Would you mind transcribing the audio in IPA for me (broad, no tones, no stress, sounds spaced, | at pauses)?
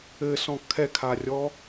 ɘ s ɔ̃ kʰ ɛ kʰ a rʲ ɔ